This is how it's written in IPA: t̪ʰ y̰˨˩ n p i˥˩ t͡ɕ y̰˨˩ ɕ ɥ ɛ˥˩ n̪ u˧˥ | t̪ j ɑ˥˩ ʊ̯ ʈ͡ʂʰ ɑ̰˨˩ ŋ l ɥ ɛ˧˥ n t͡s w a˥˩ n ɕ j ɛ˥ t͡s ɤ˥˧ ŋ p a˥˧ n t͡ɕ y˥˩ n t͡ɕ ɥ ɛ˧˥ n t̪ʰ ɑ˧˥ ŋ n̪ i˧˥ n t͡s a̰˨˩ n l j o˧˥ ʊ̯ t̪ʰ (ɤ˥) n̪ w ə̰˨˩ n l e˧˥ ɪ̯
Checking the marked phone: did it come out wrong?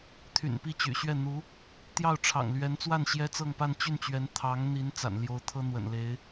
no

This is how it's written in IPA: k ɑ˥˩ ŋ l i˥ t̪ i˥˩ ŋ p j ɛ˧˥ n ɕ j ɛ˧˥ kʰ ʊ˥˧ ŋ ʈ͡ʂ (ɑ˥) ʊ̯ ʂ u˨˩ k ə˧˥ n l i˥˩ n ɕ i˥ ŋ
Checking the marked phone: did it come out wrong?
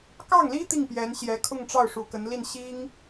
yes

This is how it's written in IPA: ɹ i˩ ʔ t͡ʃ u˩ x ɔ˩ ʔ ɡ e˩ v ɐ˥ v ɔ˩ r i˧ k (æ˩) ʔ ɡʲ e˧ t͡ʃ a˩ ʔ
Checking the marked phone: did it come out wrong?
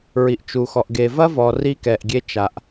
yes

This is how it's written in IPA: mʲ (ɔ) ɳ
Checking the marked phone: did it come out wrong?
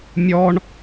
no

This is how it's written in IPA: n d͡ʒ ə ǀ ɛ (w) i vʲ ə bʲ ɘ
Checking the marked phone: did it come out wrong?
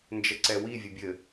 no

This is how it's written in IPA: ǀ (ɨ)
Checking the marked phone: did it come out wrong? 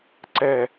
yes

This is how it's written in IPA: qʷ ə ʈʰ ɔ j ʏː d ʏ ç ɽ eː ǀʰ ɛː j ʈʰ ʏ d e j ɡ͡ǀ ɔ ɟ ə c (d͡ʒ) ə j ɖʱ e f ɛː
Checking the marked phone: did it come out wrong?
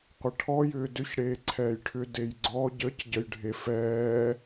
yes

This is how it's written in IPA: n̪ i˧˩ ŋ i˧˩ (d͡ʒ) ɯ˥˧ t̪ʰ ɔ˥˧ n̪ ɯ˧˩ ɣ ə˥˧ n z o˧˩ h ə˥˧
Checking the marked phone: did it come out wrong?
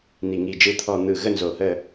no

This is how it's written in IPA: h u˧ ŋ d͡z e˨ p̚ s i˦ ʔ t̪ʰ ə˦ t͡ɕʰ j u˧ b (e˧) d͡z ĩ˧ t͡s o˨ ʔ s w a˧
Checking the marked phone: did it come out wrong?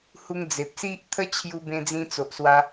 yes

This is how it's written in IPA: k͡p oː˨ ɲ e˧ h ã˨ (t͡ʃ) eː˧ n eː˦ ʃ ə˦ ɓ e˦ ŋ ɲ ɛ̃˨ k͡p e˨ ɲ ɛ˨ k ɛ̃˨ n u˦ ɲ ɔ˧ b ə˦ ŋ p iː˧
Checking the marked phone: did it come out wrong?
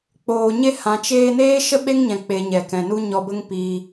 no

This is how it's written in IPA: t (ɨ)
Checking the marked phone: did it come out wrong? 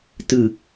no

